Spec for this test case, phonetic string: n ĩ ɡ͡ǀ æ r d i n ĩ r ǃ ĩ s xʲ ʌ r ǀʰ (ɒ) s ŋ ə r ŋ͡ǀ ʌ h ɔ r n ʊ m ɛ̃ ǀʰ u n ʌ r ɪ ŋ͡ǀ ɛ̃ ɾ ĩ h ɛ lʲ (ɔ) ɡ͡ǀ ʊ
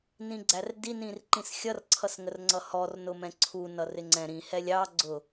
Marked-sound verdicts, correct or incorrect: incorrect: ʌ, incorrect: ɑ

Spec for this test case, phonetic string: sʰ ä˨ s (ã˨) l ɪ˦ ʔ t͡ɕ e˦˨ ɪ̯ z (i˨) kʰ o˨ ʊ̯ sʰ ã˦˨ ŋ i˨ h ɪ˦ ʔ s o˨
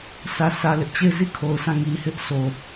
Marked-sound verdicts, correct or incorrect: incorrect: ä˨, incorrect: i˦˨

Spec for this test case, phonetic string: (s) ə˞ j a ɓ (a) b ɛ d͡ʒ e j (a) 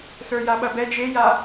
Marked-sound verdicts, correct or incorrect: correct, incorrect: ɐ, correct

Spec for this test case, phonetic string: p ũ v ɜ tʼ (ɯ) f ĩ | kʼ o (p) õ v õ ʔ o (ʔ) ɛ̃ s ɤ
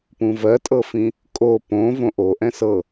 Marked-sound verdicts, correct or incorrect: incorrect: ɤ, correct, correct

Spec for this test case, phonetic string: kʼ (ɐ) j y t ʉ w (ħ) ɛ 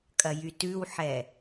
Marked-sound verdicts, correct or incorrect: correct, correct

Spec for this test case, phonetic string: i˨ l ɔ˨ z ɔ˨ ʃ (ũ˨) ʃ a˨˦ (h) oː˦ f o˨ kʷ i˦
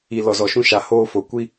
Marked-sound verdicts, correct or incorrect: incorrect: ũ˦, correct

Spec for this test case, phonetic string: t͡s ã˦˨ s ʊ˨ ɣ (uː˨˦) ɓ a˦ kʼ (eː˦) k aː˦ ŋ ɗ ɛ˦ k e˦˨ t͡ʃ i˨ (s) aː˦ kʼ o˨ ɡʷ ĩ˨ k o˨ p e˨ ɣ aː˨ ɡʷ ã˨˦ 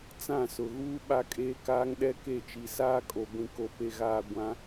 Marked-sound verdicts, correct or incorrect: incorrect: uː˦, correct, correct

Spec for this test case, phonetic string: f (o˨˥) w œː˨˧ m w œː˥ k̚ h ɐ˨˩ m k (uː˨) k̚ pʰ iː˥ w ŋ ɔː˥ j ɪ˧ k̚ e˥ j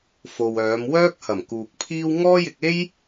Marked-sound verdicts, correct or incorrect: incorrect: o˨, correct

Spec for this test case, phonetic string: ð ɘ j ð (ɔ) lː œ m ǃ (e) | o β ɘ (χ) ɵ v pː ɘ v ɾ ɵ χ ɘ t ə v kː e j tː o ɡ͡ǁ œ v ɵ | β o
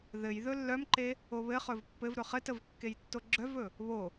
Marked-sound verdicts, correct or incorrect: incorrect: ɵ, correct, correct

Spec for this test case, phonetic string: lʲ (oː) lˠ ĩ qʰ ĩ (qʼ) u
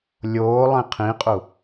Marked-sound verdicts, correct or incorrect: correct, correct

